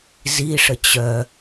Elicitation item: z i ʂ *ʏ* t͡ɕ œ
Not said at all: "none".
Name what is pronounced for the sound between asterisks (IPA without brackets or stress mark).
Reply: ə